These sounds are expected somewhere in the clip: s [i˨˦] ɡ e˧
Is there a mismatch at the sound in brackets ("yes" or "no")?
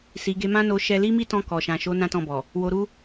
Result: yes